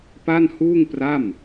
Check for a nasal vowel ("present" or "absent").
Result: absent